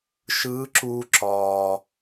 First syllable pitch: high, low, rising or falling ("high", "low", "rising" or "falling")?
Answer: rising